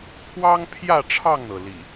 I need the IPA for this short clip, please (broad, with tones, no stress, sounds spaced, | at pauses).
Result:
pʰ w ɑ˦ ŋ pʰ j ä˥˨ ʈ͡ʂʰ ɑ˥˨ ŋ n̪ ɤ˩ l ḭ˨˩